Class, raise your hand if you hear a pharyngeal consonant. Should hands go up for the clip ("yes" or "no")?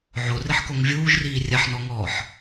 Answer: yes